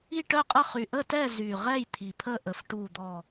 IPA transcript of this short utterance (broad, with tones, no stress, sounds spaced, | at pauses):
i˥˨ ʈ œ˥˨ qʼ ə˥˨ χ y˨˩ ʔ ə˥˨ t ɛ˥˨ z y˨˩ ʁ ɛ˥˨ j t̪ʰ i˨˩ pʰ ə˥˨ ʔ ə˨˩ f ʈ u˨˩ d̪ ɔ˨˩